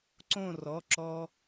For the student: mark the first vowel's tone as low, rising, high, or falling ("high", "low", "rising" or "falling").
falling